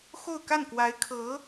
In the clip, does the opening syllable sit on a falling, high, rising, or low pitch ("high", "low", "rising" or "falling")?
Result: falling